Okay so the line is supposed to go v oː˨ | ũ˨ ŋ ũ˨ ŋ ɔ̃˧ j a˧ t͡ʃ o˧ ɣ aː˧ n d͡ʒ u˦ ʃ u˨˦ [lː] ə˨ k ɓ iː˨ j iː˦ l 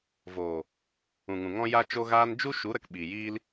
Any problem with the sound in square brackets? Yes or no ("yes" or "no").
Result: yes